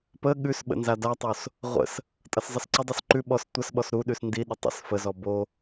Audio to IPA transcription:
p ə ɠ ʉ s ɓ ə̰ n z a d a tˤ o s | ʁʷ ə̰ s | tʼ ʌ s zˤ ə s ǀ ə dˤ u s ǃ ʉ ɓ ɔ s tʷ ʌ s ɓ ɔ s ɾ u ɗ ʉ s n d i ɗ ə tˤ ə̰ s f ə z ɔ b o

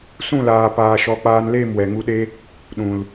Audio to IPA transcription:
s ũ˦˨ l aː˨ p aː˨ ʃ ɔ˨˦ k͡p aː˧ n l e˦˨ m w ɛ˨ ŋ u˧ ɗ e˦ | ɗ ũ˨ l

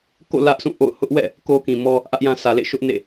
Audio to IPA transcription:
k o̰˦˨ l ä˦ ʔ s ũ˦˨ ʔ o̰˦˨ ʊ̯ h ʊ˦ ʔ w ɛ̰˦˨ | k o˦ k ĩ˨ m ɔ˦ | ʔ ä˦ ʔ j ã˦ sʰ ä˨ l ḛ˦˨ ʃ ʊ˦ ʔ n ḛ˦˨

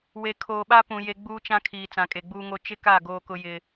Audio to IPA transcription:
w e˨ kʰ oː˨ ɓ a˦ p ũ˨ j e˨ ɡ͡b uː˦ t͡ʃ ã˦ kʰ iː˨ t͡s ã˨ kʼ e˨ ɡ͡b uː˦ ŋ o˦ t͡ʃ ɪ˦ k a˦˨ ɡ oː˦ k ʊ˦ j ɪ˦

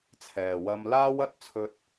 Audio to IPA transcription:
t͡sʰ ɛː˨ w ɐ˥ m l aː˥ w ɐ˥ t̚ t͡sʰ ɵ˥ t̚

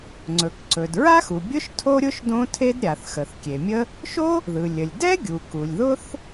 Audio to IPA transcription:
ŋ͡ǀ ɵ˩ k ǀ ɵ˩ d ɹ a˥ x u˩ bʲ ʊ˥ ʃ tʰ o˥ ɾʲ ʊ˥ ʃ d õ˥ tʰ e˥ d ɾʲ a˩ θ x ə˩ θ kʲ e˩ mʲ ə˥ | ʃ o˥ | ð ɯ˩ lʲ ə˩ lʲ d ɛ˥ ɡʲ u˩ k u˩ lʲ ð ʊ˥ θ

